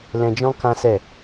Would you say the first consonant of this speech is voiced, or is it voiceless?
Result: voiced